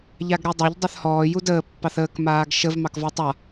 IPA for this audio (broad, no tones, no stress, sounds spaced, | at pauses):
ʎ a ɡ ɾ ø dˤ a ʎ dˤ ø θ h ɔː j u d əː pː ɑ θ əː k m aː ɡ ʃ ə v m ɑ k v ɔ tˤ a